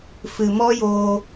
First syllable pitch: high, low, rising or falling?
low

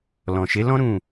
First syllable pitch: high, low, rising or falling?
low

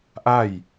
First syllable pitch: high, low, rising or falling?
falling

